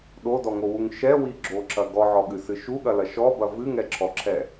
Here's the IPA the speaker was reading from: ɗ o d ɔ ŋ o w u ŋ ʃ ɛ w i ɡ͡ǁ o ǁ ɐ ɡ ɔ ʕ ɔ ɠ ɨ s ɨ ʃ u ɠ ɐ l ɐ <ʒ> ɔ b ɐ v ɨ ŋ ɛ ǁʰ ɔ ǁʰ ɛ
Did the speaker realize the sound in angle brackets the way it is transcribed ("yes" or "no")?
no